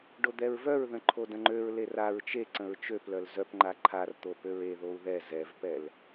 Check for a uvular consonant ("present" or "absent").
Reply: absent